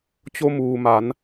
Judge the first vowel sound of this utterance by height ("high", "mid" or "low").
mid